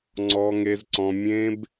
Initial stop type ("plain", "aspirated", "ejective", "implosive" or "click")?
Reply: click